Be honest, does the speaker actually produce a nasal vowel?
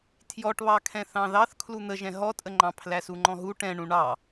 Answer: yes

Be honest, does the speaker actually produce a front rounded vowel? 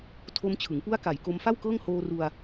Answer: no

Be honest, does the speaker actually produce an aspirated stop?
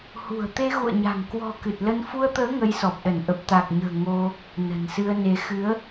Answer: no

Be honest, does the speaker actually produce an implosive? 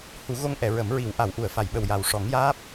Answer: yes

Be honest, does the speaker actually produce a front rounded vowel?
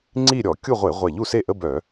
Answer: yes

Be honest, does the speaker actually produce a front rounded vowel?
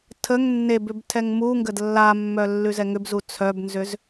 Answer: yes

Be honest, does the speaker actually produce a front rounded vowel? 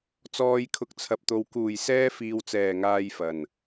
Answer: no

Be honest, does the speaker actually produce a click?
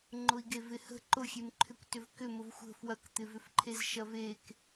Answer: yes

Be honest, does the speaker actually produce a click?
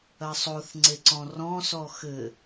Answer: yes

